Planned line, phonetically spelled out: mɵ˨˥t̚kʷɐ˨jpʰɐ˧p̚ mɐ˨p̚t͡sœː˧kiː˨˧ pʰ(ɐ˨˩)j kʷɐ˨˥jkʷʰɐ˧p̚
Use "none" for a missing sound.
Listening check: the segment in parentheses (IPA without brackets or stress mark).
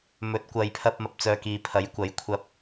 ɐ˨˥